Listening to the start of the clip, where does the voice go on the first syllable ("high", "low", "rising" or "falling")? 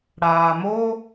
low